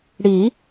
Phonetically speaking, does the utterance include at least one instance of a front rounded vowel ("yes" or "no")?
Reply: no